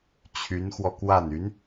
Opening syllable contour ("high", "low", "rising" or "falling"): rising